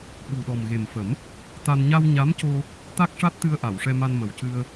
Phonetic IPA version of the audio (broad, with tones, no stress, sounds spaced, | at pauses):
ɓ u˨˩ ɗ ɔ˨˩ m ɣ e˨˩ m f ə˨˩˦ m | t̪ a˧ n ɲ a˧ w ɲ a˧˥ m c o˧ | t̪ a˦˥ k̚ ʂ a˦˥ t̚ t̪ ɨ˧ ə̯ ʔ a˨˩˨ w ʂ ɛ˧ m a˧ n m ə˨˩ w c ɨ˧ ə̯